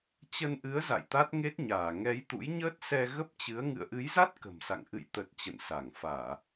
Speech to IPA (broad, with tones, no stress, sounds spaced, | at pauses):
t͡ɕ ə˧ n ʔ ɨ˨˦ ə̯ z a̰˧˨ j t̪ a˦˥ t̚ ŋ e˦˥ t̚ ɲ aː˧˩ ŋ ɛ˨˦ j t̪ ṵ˧˥ j ɲ əː˦˥ t̚ s ɛ˧ ɣ ə˦˥ p̚ t͡ɕ ɨ˨˦ ə̯ ŋ ɨ̰˧˨ ə̯ ʔ ɨ˨˦ j z a˦˥ t̚ k ə̤˨˩ m s a̰˧˨ ŋ ʔ ɨ̰˧˨ j t̪ ə˨˩ t̚ t͡ɕ ə̰˧˨ n s a˧˩ ŋ f aː˧˩˨